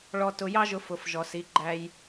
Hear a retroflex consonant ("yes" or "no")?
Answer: yes